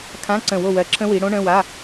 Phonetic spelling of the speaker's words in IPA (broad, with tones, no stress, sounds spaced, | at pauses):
kʰ ã˧˥˧ ǀ ə̃˧˩ w o˧˩ w ɜ˨˦ ǁʰ ə̃˦˥ w i˨˦ ɽ õ˦˥ ɳ ə̃˧˥˧ w a˧˥˧